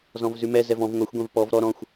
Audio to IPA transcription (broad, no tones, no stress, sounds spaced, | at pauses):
z ɔ̃ v z ʉ m ɛ z ɛ v ɔ̃ v ŋʷ ɛ xʷ ɡʷ ɛ̃ v p ɔ v ɾ ɔ ɾ ɔ̃ xʷ